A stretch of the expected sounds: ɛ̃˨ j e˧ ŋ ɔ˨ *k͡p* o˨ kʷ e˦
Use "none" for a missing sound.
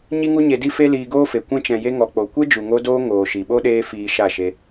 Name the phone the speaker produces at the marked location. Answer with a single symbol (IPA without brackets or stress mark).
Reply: k͡p